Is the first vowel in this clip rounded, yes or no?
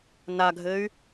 no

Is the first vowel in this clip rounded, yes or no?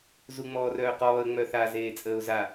yes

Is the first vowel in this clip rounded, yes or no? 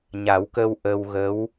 no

